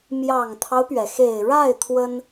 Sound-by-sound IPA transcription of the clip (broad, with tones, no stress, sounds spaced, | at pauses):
m j ɑ˨˩ ŋ t̪ʰ ɑ˦ ʊ̯ p ɥ ɛ˩ x e˨˩ ɪ̯ ɻ a˥˩ ɪ̯ t̪ʰ w ə˥ n